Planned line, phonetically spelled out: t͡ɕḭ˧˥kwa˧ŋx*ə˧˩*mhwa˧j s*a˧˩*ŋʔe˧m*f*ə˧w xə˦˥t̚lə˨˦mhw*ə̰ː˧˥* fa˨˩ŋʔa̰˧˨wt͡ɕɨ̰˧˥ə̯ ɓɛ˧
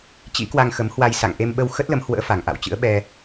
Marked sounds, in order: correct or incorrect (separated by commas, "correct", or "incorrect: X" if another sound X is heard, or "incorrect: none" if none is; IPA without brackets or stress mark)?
incorrect: ə˨˦, incorrect: a̰˧˨, incorrect: ɓ, correct